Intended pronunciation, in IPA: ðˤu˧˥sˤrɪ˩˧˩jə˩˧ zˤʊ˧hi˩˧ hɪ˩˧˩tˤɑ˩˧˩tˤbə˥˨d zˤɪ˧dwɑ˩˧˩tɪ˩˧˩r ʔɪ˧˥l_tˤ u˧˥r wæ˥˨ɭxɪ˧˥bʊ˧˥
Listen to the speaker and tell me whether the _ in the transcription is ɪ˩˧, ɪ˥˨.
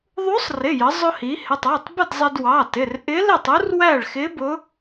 ɪ˥˨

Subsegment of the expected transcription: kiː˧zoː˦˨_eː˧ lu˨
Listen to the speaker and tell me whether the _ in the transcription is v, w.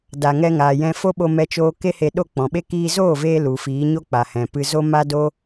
v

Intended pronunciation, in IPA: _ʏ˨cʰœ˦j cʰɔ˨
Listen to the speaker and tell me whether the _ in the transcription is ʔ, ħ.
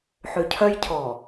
ħ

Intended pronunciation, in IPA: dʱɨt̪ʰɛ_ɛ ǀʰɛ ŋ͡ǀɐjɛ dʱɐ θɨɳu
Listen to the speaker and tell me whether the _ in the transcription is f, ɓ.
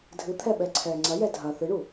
ɓ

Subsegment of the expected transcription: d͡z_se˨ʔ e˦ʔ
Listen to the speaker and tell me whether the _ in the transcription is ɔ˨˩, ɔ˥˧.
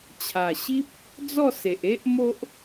ɔ˥˧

